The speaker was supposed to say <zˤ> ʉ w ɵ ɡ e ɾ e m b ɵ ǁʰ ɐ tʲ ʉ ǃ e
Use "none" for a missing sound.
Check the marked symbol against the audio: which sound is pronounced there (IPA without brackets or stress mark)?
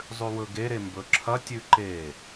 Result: zˤ